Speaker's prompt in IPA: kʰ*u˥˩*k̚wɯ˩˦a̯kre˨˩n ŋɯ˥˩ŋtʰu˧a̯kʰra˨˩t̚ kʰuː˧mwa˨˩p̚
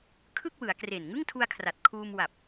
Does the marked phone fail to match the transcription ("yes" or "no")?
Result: yes